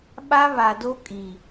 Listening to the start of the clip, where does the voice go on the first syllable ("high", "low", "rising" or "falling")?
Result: high